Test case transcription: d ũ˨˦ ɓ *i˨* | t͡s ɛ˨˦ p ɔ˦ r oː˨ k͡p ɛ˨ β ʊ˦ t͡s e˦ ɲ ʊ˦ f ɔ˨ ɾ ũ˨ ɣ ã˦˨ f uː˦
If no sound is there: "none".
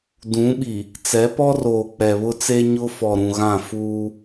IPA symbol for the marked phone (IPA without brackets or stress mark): i˨